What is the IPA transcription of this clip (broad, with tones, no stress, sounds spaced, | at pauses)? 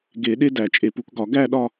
ɡ e˨˩˦ ɗ e˥ d æ˨˩˦ t͡ʃʼ e˨ p u˨˩˦ k ɡ ɒ˨˩˦ ɡ æ˥˧ ɗ ɒ˥˧